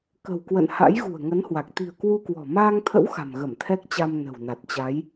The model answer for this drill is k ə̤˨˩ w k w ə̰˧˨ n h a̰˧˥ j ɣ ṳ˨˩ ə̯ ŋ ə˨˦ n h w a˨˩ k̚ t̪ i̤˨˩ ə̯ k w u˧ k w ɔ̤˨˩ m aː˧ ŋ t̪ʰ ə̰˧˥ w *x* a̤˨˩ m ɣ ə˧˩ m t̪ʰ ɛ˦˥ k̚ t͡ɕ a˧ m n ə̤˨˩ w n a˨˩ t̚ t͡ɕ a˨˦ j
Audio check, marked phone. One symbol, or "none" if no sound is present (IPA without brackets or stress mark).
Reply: x